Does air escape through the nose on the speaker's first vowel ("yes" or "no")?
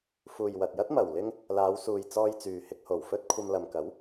no